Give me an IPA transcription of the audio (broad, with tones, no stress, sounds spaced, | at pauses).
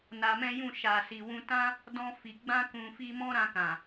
n a˧ m ɛ̃˦ j ũ˦˨ ʃ a˨ s i˨ w ũ˧ t ã˦ | d ɔ̃˧ f i˨ ɡ͡b ã˧ k ũ˨ f i˧ m ɔ̃˦ ɾ ã˧ k ã˨